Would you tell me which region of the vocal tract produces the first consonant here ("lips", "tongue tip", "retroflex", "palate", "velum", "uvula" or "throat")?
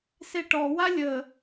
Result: tongue tip